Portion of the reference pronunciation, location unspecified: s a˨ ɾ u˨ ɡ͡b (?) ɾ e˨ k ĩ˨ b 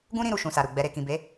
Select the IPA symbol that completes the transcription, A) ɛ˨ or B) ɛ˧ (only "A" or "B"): A